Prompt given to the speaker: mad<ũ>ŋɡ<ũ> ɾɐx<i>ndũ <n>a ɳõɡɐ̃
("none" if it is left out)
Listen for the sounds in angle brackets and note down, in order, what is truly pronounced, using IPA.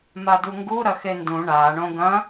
u, u, e, ɳ

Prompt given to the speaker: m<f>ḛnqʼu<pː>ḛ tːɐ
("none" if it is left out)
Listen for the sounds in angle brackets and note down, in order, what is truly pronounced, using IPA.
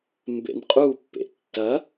b, pː

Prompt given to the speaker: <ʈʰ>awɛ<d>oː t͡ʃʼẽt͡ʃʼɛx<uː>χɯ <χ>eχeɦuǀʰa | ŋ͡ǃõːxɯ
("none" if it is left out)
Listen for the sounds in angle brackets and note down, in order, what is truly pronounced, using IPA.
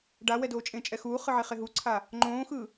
ɖ, d, uː, ʕ

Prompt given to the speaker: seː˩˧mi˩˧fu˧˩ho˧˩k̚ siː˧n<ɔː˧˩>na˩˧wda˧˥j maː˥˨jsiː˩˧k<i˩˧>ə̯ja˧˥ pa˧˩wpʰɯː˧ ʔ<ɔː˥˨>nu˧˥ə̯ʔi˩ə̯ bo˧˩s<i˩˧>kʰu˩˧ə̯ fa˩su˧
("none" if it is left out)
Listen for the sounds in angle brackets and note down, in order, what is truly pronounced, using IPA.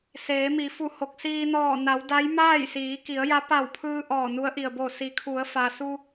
ɔː˧˩, i˩˧, ɔː˧˩, i˩˧

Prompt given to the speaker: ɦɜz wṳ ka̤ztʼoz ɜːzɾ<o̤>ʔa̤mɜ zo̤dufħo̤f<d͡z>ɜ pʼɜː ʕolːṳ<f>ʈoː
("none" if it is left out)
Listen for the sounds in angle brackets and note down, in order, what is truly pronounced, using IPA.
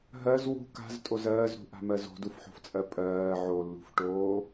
ṳ, t͡sʼ, f

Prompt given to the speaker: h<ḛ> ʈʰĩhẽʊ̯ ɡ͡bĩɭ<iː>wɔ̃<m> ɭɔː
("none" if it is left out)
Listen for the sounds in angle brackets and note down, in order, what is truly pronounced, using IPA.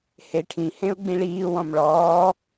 e, iː, m

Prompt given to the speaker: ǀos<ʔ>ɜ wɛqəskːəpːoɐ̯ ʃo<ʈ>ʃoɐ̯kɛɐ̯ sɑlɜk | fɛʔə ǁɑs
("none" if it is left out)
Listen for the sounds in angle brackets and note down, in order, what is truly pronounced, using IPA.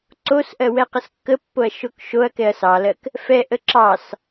ʔ, k

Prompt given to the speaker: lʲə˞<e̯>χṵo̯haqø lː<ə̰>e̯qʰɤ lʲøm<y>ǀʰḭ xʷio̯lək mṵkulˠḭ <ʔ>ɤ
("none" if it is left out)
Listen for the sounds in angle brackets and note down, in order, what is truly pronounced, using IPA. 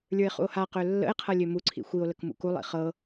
e̯, ə̰, u, χ

